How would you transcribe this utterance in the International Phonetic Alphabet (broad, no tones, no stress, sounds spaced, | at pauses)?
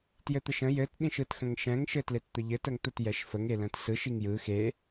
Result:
t j ɘ t̪ ə ʃ ə̃ j ɘ t ɗ ĩ ʃ ɯ t x ə̃ ŋ ʃ ɛ̃ ŋ ʃ ɘ t l e t t̪ ə ʎ ɘ t ə ŋ t̪ ə t j ɛ ʃ f ə ŋ e l ə̃ t s ɯ ʃ i ŋ j ɯ x e